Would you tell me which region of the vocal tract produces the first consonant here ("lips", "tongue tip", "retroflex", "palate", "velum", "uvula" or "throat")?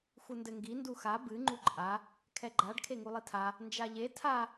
velum